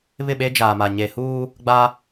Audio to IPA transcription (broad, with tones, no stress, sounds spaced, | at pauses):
β ɪ˦˨ ɓ e˦ d͡ʒ aː˨ m a˨ ɲ e˨ h uː˦ | ɡ͡b a˦